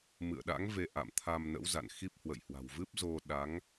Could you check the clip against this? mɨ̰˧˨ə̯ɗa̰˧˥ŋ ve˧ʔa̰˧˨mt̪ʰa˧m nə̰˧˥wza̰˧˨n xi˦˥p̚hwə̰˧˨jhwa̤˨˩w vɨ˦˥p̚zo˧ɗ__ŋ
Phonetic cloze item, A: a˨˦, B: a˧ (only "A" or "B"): A